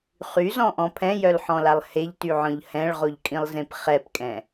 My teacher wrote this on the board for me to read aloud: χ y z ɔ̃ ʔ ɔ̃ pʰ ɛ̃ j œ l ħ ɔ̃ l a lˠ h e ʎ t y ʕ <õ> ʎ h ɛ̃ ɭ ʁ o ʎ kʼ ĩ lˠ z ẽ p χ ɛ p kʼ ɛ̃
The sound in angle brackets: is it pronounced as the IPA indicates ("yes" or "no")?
no